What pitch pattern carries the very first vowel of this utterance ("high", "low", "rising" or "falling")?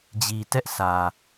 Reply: low